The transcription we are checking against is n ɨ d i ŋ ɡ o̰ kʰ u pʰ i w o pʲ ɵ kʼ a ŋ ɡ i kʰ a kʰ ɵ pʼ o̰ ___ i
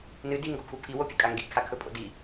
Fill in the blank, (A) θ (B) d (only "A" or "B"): B